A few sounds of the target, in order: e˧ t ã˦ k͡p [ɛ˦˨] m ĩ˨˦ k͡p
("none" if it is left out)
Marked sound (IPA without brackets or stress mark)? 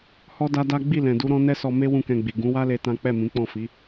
ɛ˦˨